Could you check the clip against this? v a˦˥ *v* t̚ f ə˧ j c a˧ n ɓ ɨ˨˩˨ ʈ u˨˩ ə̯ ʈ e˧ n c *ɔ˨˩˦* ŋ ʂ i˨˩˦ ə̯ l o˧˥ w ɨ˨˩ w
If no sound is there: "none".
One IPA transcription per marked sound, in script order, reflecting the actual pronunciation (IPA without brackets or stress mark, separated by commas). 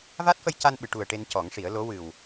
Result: none, ɔ˨˩˦